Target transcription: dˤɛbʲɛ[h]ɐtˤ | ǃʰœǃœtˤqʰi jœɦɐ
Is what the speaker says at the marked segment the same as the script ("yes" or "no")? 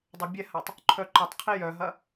yes